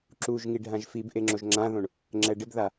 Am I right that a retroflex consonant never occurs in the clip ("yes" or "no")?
no